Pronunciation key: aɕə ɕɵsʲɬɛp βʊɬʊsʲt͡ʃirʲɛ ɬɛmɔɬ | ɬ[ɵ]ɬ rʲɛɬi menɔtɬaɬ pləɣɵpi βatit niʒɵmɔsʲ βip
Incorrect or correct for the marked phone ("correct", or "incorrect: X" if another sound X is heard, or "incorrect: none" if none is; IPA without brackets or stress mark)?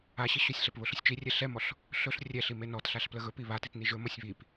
correct